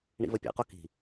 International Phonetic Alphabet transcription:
ɳ ḭ v ə pʲ ɛ̰ q o k i̤

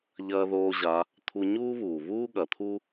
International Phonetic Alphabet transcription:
ʎ ɐː˥ ð oː˥ ʑ a˧˥ | t̪ʰ u˧ ɲ uː˥ β uː˩ β uː˥ ɠ ɐ˩˧ t̪ʰ u˥

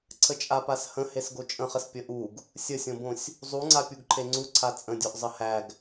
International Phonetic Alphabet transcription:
ǀʰ ə t͡ʃʼ a p a s h ə̃ h e s ɡ o t͡ʃʼ ə̃ χ ə s pʲ ə ʔ u ɡ | sʲ ə sʲ õ b õ sʲ | zˤ u ŋ͡ǀ a pʲ u ɡ ǃʰ e ŋ͡ǀ u ǀʰ a t͡sʼ ə̃ dʲ o ʔ zˤ ə h æ ɡ

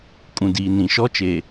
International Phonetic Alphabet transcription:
kʼ ũ˨ d iː˨ n ĩ˨ ʃ ɔ˦ t͡ʃ eː˨

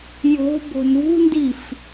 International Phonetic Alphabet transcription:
j o̤ b o̤ n ṳ n d i f

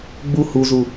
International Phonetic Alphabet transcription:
ɡ͡b u h u z u

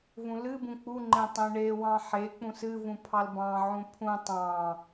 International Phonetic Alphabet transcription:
v ũ l ɨ b ũ k͡p u ŋ͡ǃ ẽ tˤ ẽ ɳ e w ɑ̃ ħ e k͡p ũ s ɨ v ũ pʰ ɑ l b ɑ̃ ʕ ũ pʰ ũ tˤ ɑ̃

